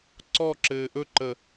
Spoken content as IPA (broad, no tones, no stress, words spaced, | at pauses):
ǀɔǁɘː ʔɵǃə